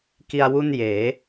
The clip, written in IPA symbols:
k i˧ a̯ w u˥˩ n j eː˩˦

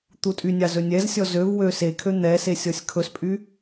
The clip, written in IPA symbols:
t̪ u tʼ y nʲ ɑ z ɵ nʲ ɛ z sʲ ɔ z ø v w ø s e kʰ ø n̪ ɛ s e sʲ ɔ sʲ kʰ ɵ s pʼ y

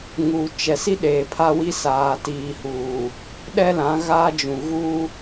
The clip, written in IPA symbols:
ŋ uː˨ t͡ʃ ɛ˨ s i˦ ɗ eː˨ pʰ a˦ w i˦ s aː˨ t iː˨ h uː˨ | ɗ ɛ˦ l ã˨˦ ɣ aː˦ d͡ʒ ũ˨ ɣ uː˦

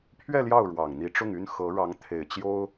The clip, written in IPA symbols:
pʰ ɥ ɛ˥˧ l j ɑ˥˩ ʊ̯ ɻ w ɑ˨˩ ŋ n̪ i˧˥ ʈ͡ʂ ʊ˥˩ ŋ y˥ n x ɤ˧˥ ɻ ɑ˧˥ ŋ t̪ʰ e˨˩ ɪ̯ t͡ɕ j o˥ ʊ̯

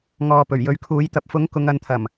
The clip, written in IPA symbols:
ŋ ɔː˨ p ɵ˨˩ ɥ j ɵ˨˧ ɥ kʰ uː˨˥ j t̪ ɐ˨ p̚ f ʊ˨˥ ŋ k ʊ˨˧ ŋ ɐ˨˧ n t̪ʰ ɐ˨˩ m

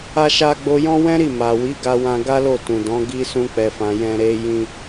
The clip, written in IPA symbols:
a˧ ʃ a˧ ɡ͡b o˧ j ɔ̃˦ w ɛ̃˦ ɾ i˦˨ m a˨ w i˨˦ ɡ a˧ w ã˧ ɡ a˦ l o˦˨ t ũ˨ d ɔ̃˨˦ ɡ i˦ s ũ˦ k͡p ɛ˧ f ã˧ j ɛ̃˧ ɾ e˧ j ĩ˧

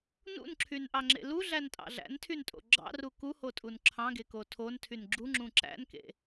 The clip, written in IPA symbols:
n ṵ n ǁʰ y n ʔ ɑ ŋ͡ǁ ḛ l u ɮ æ n tʼ ɑ̰ ɮ æ̰ n tʰ y n tʼ o̰ ɡ͡ǁ ɑ̰ r u k u h o tʼ u n ǁʰ ɑ̃ ɡ e k o tʰ o n tʰ y n ɡ͡ǁ u ŋ͡ǁ ũ ǁ æ̰ n k ḛ

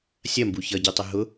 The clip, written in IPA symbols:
sʲ ɐ m b u ç ʌ ɟ ɛ tˤ ʌ ɦ ʊ

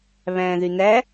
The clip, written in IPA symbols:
β æ̃ː ð y n æ

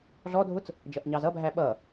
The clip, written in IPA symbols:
ɮ ɔ dʱ ʊ t͡s | d͡ʒ ʌ ʔ ɲ ɑ z ʌ bʱ æ ɓ ʌ

